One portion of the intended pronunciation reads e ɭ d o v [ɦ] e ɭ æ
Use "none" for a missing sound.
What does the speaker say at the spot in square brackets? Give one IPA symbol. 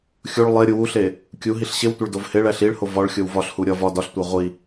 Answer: h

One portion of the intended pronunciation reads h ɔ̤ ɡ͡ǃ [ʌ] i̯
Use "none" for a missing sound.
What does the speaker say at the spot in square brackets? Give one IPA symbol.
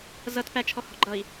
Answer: ʌ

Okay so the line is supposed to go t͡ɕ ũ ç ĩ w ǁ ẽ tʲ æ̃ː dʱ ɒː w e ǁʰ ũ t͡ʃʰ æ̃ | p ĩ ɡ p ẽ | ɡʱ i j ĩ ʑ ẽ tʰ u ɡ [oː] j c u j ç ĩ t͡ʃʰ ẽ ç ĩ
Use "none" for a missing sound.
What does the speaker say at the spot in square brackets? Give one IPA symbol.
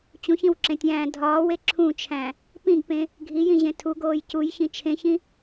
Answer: oː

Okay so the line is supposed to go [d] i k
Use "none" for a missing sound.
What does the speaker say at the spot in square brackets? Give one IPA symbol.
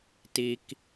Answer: t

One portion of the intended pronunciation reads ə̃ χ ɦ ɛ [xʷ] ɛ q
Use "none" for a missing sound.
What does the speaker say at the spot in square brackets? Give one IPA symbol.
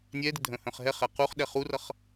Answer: χ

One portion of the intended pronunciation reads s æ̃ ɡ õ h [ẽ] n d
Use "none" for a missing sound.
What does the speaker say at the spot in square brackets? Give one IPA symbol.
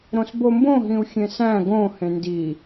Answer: ẽ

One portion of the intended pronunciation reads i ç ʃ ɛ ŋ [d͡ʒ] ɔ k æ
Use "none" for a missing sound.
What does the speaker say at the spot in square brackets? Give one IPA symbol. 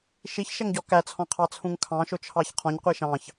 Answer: ɟ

